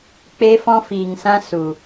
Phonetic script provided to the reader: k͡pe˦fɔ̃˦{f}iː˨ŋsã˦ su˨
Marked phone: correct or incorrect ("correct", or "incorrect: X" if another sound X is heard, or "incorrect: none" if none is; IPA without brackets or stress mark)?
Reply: correct